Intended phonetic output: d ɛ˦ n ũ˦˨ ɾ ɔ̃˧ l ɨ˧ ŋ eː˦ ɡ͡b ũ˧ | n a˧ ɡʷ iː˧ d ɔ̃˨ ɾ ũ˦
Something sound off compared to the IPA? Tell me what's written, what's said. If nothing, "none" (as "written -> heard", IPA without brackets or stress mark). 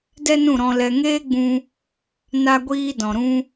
ɨ˧ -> ɛ˧